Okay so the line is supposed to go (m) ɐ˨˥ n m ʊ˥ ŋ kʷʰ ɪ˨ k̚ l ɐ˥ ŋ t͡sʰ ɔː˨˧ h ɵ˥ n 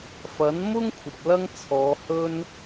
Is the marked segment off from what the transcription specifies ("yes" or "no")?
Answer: yes